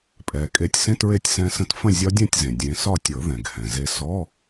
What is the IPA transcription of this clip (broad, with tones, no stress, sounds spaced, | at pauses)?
pʼ ɛ˩ kʼ e˨˦ tʲ s ẽ˧˥˧ t ɹ e˥˨ tʲ s ɛ̃˦˥ s ə̃˦˥ t f ə̃˥˨ zʲ ɒ˦˥ dʲ ɛ̃˥˨ tʲ z ẽ˩ dʲ ẽ˨˦ s ɒ˥˨ tʲ ɤ˨˩˦ ð ɛ̃˩ ɡ h ɛ̃˩ z e˦˥ s ɔ˧˥˧